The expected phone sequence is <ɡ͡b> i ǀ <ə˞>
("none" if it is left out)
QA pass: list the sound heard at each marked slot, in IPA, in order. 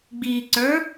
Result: ɡ͡b, ə˞

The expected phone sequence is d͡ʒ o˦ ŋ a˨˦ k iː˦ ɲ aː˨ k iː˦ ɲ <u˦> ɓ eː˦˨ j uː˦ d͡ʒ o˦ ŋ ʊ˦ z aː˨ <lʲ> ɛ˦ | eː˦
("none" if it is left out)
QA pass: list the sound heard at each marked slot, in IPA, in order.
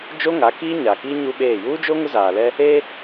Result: u˦, l

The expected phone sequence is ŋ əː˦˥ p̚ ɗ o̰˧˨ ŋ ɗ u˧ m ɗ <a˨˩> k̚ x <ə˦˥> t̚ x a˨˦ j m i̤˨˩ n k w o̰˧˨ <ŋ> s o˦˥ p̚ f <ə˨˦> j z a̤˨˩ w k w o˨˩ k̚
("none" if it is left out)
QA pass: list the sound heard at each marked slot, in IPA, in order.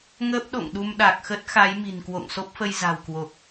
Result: a˨˩, ə˦˥, ŋ, ə˧

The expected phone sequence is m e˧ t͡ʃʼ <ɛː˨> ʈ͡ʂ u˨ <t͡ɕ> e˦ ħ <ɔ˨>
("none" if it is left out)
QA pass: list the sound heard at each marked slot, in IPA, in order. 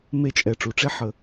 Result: ɛ˨, ʈ͡ʂ, ə˨

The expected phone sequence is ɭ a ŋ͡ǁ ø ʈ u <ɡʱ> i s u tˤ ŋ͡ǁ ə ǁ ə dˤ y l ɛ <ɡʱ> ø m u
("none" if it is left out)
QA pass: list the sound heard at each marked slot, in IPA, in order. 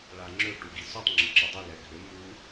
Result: ɡ, ɡʱ

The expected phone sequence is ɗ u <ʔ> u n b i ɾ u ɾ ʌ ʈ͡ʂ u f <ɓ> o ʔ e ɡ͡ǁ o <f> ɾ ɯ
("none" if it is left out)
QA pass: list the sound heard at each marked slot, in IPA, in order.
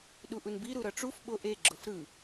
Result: ʔ, ɓ, f

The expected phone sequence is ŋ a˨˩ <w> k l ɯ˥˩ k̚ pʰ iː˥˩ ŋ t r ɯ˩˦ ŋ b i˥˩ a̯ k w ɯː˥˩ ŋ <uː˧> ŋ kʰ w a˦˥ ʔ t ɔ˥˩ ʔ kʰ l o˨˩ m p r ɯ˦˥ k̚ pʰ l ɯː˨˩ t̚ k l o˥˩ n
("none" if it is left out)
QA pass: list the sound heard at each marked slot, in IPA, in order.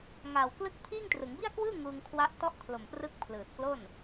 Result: w, uː˧

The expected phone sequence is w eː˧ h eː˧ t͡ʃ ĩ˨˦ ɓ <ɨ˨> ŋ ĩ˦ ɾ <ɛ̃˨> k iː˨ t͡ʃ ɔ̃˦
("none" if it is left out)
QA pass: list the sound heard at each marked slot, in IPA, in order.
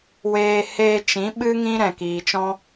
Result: ɨ˦, ɛ̃˨

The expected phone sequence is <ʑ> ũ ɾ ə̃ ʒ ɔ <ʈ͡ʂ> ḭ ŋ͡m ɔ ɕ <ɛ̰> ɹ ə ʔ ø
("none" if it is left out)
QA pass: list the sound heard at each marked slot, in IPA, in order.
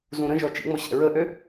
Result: z, t͡ʃ, ɛ̰

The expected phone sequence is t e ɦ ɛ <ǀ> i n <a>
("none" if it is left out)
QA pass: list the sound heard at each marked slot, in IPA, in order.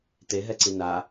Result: ǀ, a

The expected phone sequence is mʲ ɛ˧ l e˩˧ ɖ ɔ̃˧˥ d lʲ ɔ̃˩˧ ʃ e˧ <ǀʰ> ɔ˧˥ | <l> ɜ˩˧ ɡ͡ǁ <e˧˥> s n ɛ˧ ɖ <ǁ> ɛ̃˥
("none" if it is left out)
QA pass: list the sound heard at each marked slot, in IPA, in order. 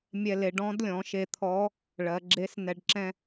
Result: t̪ʰ, ɭ, e˧˥, ǁ

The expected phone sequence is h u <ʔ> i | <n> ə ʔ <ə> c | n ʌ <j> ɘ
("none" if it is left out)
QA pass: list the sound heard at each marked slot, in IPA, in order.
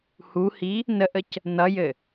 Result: h, n, ə, j

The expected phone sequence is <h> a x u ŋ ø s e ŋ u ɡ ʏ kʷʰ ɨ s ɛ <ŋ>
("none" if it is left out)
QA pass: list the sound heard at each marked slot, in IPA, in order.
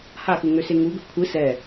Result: h, none

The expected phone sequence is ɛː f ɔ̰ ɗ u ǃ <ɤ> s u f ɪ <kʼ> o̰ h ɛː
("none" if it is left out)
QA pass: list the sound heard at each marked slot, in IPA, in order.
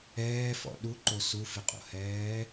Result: o, qʼ

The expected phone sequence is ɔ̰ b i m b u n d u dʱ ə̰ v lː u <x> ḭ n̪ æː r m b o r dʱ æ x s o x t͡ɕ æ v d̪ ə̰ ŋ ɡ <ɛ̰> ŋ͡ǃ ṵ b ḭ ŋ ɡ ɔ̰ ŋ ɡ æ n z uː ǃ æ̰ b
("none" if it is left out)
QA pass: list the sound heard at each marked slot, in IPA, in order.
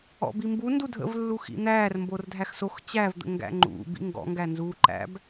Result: x, æ̰

